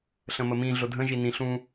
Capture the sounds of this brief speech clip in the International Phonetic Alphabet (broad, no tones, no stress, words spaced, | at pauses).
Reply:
ɬə̃məmĩ ɮʊdʱə̃ ʒinĩ ɬũ